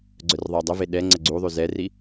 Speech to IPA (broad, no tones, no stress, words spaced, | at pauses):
ɡ͡ǀœrðˤadˤəve ɗɛ ŋ͡ǀəɡ͡ǀuðˤy zɛri